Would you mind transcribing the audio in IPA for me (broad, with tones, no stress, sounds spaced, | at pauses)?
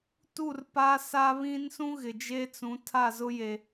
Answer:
t u˦˨ r p a˦ s a˦ β ĩ˦ n s ũ˦ ɣ ɪ˨ d͡ʒ e˦ t͡s ũ˨˦ tʰ a˦˨ z ʊ˦ j e˨